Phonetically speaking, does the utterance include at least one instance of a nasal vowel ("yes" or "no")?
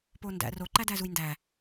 no